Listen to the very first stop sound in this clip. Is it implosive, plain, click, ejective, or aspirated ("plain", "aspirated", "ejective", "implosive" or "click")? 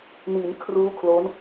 aspirated